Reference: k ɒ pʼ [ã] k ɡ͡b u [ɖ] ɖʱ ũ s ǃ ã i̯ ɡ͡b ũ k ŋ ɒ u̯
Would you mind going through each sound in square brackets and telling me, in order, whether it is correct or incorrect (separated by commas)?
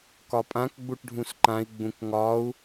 correct, incorrect